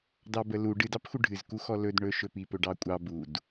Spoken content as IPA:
d ɑ b ə l u ɖ ɨ d ɑ p x u ɖʱ ɨ z k u x ɔ l ɵ d ɳ ɵ ʃ ɵ p i p ɵ ɖ ɑ kʷʼ ɑ b u d

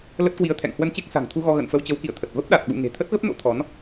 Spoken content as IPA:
l ə˦˥ t̚ k w i˧ ə̯ t̪ʰ ɛ̰˧˨ ŋ h w ə˧ n t͡ɕ e˦˥ k̚ s a̤˨˩ ŋ t̪ʰ u˧ ɣ ɔ˧ ɣ ə̰˧˨ n f ə˧ w t͡ɕ ə˨˦ w k ḭ˧˨ ə̯ t̪ʰ ə˨˩ t̚ v ə˦˥ p̚ ɗ a˨˩ t̚ ɓ ṵ˧˨ ŋ e̤˨˩ t̪ʰ ə˦˥ t̚ ɣ ə˦˥ p̚ n o̰˧˥ t̪ʰ ɔ˨˦ n

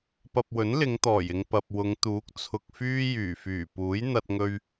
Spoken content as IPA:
p ɐ˧ p̚ w ɵ˨˥ n l ɪ˨˧ ŋ t̪ ɔː˨˩ j ɪ˨ ŋ p ɐ˨ p̚ w ʊ˨˧ ŋ t̪ uː˨˥ k̚ t͡sʰ ʊ˧ k̚ f yː˥ j yː˨˩ f yː˨˩ p uː˨˥ j n̪ ɐ˧ t̚ ŋ ɵ˧ ɥ

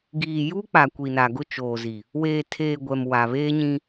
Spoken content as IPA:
ɡ iː˨ j u˦ k͡p a˨ kʷ i˨ n a˨ ɡ ʊ˦ t͡ʃ oː˨ z i˨ | w eː˨ tʰ eː˨ ɡʷ ɛ˨ m w a˨ β eː˦ ɲ ĩ˦

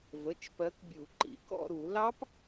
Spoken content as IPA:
v ə˩˧˩ t͡ʃ p ɜ˨˦ k bʲ u˨˩˦ ǃ ḭ˨˦ k ɔ̰˥˧ ɾ u˨˩˦ l ɑ˦˥ p

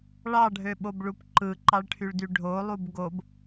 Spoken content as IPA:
ɭ ɑ ɖʱ ø ɓ o b ɭ u p ǃ ɯ ǃ ɑ ɭ ʈʰ y ɭ d y ɖʱ o lˠ u b ɡ o b

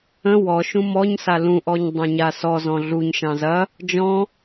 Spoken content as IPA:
ə̃ w ɔ ʃ ũ m ɔ ɲ s a l ũ ʔ ɔ ɲ dˤ ã ɲ a s ɔ z ɔ̃ ɮ u ɲ ʃ ɑ̃ z ɐ | d͡ʒ ɔ̃

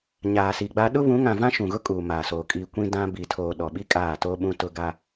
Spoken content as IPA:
ɲ aː˨ s i˨ ɡ͡b a˦ ɗ ʊ˦ β ũ˨˦ ŋ ã˨ v ã˦ ʃ ũ˨ ɣ ʊ˦ kʼ uː˨ m aː˨ s oː˨ kʼ i˨ kʷ ĩ˦ d ã˦ b i˨ tʰ oː˨ ɗ ɔ˨ ɓ i˦ kʼ aː˦˨ t o˦ ɓ ũ˦ t ʊ˦ ɡ a˦

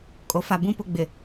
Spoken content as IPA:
kʼ o˨ f a˨ b ũ˦ p ʊ˦˨ ɡ͡b ɪ˨

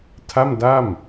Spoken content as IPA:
tʰ a˥˩ m d a˥˩ m

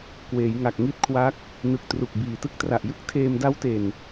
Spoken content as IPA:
k w eː˩˦ j ŋ a˨˩ k̚ ŋ i˦˥ t̚ kʰ w a˦˥ k̚ | n ɯ˨˩ k̚ t r u˨˩ k̚ b iː˨˩ t ɯ˦˥ k̚ t r a˨˩ ʔ j ɯ˥˩ k̚ tʰ eː˧ m d a˦˥ w t e˨˩ n

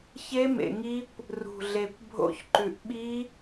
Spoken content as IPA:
ç e˦˥ m ḛ˨˩ ŋ i˦˥ kʷ | r ṳ˨˩ ɮ e˨˩ kʷ bʱ o̰˦˥ ç ǃ ʉ˨˩ ʔ ɓ i˦˥

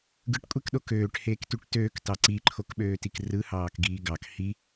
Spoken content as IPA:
ɡ ɯ ʈ kʷʼ e k ɗ o k øː ʈ h eː k t y ʈ t øː k t ɑ ǀ i ǃʰ o k ɓ øː t i k r ɯ h ɑː k ɡ iː ɡ ɑ k h i

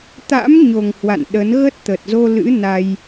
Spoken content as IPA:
t̪ a̰˧˥ m ɲ o˨˩ ŋ h w a̰˧˨ n ɗ ə˨˦ n ɣ ə˦˥ t̚ t̪ ə˨˩ t̚ z o˧ l ɨ̰˧˥ n a˧ j

